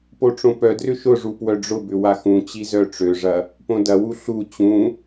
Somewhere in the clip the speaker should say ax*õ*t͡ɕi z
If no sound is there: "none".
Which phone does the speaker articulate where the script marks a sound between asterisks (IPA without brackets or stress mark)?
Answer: ũ